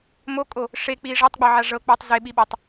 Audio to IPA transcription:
mokʼo | ʂek͡pi ʐatˤɡ͡bɤʕa ʐɤk͡pɔtˤ zeɓiɓatˤ

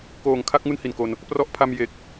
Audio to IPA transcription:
koː˨˩ŋkʰa˥˩k̚ ŋu˥˩nhi˨˩nko˧n | prɔ˦˥ʔpʰa˧m je˨˩k̚

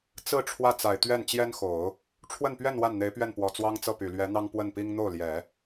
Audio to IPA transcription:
t͡sɹ̩˥˧ ʈ͡ʂʰwä˥˩t͡sa˨˩ɪ̯ t̪ɥɛ˥˩n t͡ɕjɛ˥nxo˨˩˦ʊ̯ | ʈ͡ʂʰwə˥˧npɥɛ˥˧n wa˥˩nn̪e˧˥ɪ̯pɥɛ˥˩npwɔ˨˩ t͡swɑ˥ŋt͡sɤ˥˩py˨˩ lɥɛ˧˥n̪ɑ˥ŋ pwə˥˩npi˥ŋ n̪o˥˩ʊ̯ljɛ˨˩˦

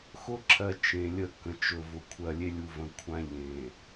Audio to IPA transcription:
xʊ˦ǁʰɜ˨ t͡ʃẽ˨lʲə˦˨kə̃˨ t͡ʃɵ˨vʊ˨ kʷʰɜ˨lʲe˦lʲu˨və̃˨ kʷʰã˦ ʎẽ˨

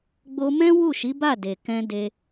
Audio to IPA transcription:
ɡ͡bo˦ mɛ̃˦wu˦˨ʃi˨˦ ba˦˨de˨kɛ̃˧ de˦

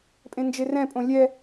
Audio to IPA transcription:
pʼẽnd͡ʒerɛ̃pʼõ lʲɛ

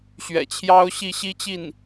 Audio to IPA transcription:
ɕɥɛ̰˨˩t͡ɕʰjɑ˥ʊ̯ɕi˥˩ ɕi˥t͡ɕi˥˩n

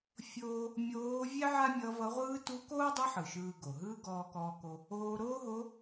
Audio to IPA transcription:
fʲoː˧ | mʲoː˧˥ vʲɛ˥ ʕa˥mʲʌ˧˥vʌ˧˥ʁʷɯː˥ tu˧˥koː˥dˤi˧˥ħɯ˩ ʃɯː˧ɡo˩ɦɯː˥ ɡɔː˧kɔː˧ko˧ | oː˧ɾoː˥ɦo˧˥

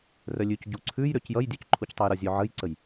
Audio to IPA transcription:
rœlʲʉcɟu ǀʰʉjɾøc jʌjdʲøc ǃʰuctˤœjɾʌzʲø ʕəjǀəj

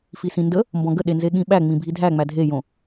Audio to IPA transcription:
fisĩndə | mbɔ̃ɡəɗenze ɠĩɓæ ŋ͡mĩbʱidʱæŋ͡mæ dʱejõ

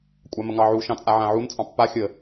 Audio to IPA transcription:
kʷʼaməŋɑʕu ʃɑ̃t͡sʼaʕãʕun t͡sʼɑ̃pːa xʲə

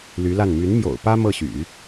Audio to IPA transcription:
ly˧˥la˥˩n my˧˥nmjo̰˨˩ʊ̯pä˥ mɤ˥˩ɕy̰˨˩˦

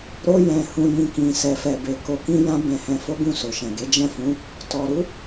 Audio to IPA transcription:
ɾo˧ jɛ̃˨hũ˨jĩ˨ kĩ˨ sɛ˨fɛ˨be˨ ko˨kĩ˧ jã˦bɛ̃˧hɛ̃˧ fo˦ɡũ˦˨ so˨ʃɛ̃˨ɡe˨˦ d͡ʒɛ̃˦˨fũ˨˦ | tɔ˨ɾu˨˦

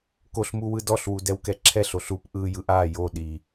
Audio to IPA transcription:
koɬmu wɯdɔɬwu dɛwkɛǁʰɛɬ oɬup ʔɯ jɯʔa jo ɗi

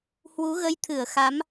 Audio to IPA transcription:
hwu˨˦ɣə˧jt̪ʰɨ˧˩ə̯xa˨˦m

